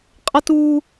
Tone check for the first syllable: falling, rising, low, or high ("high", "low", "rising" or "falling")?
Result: high